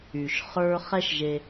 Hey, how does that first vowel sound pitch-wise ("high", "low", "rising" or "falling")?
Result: low